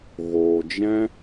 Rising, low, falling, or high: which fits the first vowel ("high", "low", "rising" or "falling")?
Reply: low